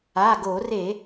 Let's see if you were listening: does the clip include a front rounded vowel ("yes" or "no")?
no